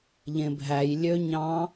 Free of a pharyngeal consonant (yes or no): yes